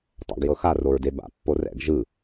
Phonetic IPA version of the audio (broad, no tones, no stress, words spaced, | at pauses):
tˤa̰ɡjɤxa roɹdeba̰ pːorɛ̰ɡ ʒɯ